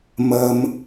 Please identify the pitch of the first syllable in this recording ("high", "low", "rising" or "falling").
low